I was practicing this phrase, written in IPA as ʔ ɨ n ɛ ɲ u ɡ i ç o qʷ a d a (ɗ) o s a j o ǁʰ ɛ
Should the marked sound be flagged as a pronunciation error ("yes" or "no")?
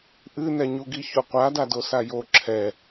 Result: yes